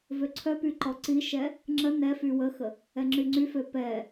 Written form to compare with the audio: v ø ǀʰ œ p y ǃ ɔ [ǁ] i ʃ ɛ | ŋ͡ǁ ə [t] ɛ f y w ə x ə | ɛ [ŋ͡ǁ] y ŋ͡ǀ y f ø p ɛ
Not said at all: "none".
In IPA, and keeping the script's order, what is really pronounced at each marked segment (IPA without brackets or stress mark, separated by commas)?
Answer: ǀ, n, ŋ͡ǁ